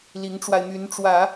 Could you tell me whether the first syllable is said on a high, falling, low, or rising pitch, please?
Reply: rising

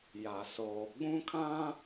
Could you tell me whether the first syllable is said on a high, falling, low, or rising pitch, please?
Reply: low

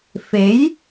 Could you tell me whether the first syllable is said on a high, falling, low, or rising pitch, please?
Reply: rising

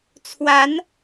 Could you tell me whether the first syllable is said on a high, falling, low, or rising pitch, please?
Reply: rising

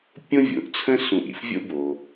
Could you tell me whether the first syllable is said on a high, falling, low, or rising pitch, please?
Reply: high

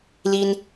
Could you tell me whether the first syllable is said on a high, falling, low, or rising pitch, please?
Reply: high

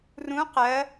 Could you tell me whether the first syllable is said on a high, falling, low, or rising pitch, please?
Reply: rising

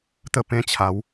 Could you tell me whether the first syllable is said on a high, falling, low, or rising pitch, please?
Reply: falling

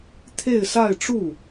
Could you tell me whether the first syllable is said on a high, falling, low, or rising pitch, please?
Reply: falling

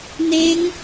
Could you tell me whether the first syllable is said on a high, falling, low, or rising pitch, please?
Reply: rising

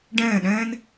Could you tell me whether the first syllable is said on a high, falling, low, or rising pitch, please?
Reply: falling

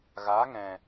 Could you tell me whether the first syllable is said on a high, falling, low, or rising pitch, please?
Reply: rising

